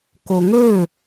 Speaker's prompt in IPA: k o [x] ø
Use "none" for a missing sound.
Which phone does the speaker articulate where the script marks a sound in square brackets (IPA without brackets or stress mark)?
ŋ